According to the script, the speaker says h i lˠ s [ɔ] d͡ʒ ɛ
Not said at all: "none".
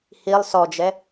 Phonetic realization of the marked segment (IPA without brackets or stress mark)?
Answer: ɔ